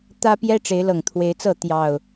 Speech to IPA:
t̪ ä˦ p j ɛ˦ ʈ͡ʂ e˨˦ ɪ̯ l ɤ˨˩ ŋ t̪ʰ w e˨˦ ɪ̯ t͡s ɤ˥˨ t̪ j ɑ˨˩ ʊ̯

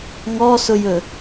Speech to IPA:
ŋ ɔ s ʊ j ɵ

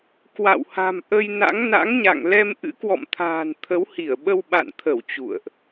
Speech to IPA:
k w a̰˧˨ w h a̤˨˩ m ʔ ə˧ j n a̰˧˥ ŋ n a̰˧˥ ŋ ɲ a̰˧˨ ŋ l ɛ˧ m ʔ ɨ̰˧˥ k w ɔ̰˧˨ m t̪ʰ a̤ː˨˩ n t̪ʰ ə˨˦ w h i˧˩ ə̯ ɓ ə˧ w ɓ a̰˧˨ n t̪ʰ ə˧˩ w t͡ɕ ṵ˧˨ ə̯ ʔ

